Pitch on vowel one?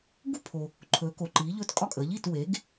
falling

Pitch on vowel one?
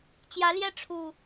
rising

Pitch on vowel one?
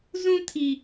high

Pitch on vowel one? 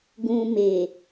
low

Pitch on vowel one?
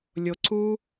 low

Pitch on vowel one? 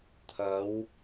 rising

